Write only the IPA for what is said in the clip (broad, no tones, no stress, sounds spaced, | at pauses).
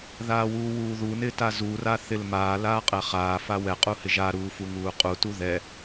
ð aː w uː w uː ð u n ɪ t a z u r a θ ɪ l m aː l aː qʼ ɛ χ aː f a w ɛ qʼ u h ɪ ʒ a ɾ uː f u ŋ uː qʼ u t u ð ɛ